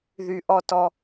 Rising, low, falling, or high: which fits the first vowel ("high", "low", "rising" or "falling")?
low